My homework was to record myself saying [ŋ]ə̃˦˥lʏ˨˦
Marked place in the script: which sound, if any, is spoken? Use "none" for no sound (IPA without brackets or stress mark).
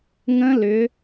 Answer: ŋ